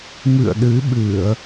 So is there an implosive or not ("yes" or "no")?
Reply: yes